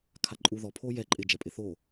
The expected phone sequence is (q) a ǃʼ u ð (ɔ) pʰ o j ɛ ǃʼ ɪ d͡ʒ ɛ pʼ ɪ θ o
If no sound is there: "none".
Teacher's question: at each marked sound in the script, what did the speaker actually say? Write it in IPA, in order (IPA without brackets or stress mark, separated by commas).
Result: kʰ, ɔ